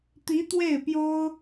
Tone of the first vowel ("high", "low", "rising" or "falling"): rising